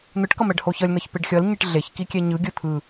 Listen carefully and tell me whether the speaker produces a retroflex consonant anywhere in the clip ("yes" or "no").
yes